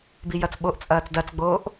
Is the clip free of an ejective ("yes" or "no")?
no